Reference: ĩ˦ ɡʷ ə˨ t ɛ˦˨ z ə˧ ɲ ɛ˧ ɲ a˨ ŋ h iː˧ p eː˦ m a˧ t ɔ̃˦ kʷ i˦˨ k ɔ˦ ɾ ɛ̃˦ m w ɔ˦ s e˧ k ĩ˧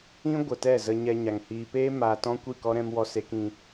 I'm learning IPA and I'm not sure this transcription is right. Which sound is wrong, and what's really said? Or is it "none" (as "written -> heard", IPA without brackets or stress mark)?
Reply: none